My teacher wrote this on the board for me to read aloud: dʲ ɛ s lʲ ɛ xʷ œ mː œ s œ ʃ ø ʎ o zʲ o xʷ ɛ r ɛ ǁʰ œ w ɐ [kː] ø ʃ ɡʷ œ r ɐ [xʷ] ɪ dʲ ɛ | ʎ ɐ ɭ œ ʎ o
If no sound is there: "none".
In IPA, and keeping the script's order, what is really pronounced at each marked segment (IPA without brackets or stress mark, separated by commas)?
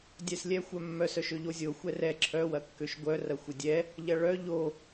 kː, xʷ